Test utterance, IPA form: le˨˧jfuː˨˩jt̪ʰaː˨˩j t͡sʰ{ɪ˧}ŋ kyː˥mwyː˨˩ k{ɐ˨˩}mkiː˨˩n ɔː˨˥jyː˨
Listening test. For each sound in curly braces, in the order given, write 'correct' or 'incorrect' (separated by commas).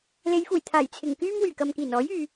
incorrect, incorrect